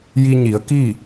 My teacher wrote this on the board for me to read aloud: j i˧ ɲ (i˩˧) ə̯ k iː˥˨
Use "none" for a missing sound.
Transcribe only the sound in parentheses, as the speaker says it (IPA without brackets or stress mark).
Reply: i˩˧